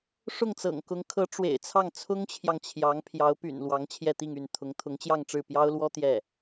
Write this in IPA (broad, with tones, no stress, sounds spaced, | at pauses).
ʂ ʊ˥˩ ŋ t͡s ɤ̰˨˩ ŋ k ʊ˧˥ ŋ kʰ ɤ˧˥ ʈ͡ʂ w ḛ˨˩ ɪ̯ t͡sʰ ɑ˥˩ ŋ t͡sʰ ʊ˥ ŋ t͡ɕʰ j ɑ˨ ŋ t͡ɕʰ j ɑ˧˥ ŋ pʰ j ɑ˧˥ ʊ̯ p y̰˨˩ n l w ɑ˧˥ ŋ t͡ɕʰ j ɛ˥˧ t̪ i˥˧ ŋ y˥˩ n t̪ʰ ʊ˧˥ ŋ t̪ʰ ʊ˧˥ ŋ t͡ɕ j ɑ˥˧ ŋ ʈ͡ʂ ɻ̩˥˩ p j ɑ˥ ʊ̯ l w ɔ˥ t̪ j ɛ˥˩